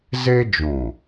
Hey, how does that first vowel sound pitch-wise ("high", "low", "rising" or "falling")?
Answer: high